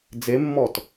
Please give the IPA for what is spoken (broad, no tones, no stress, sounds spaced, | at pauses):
d͡z e mː ɔ t